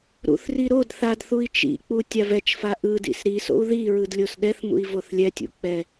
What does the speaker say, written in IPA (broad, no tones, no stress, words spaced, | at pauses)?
ɾṵθri ɾod θadθui̯ t͡ʃḭk͡pu tʲavɛt͡ʃfa ʔɯdḭs ɾiso̰u̯ ðiɹɯd lʲosɗɛθmṵi̯ voθlʲɛtʲṵ k͡pɛ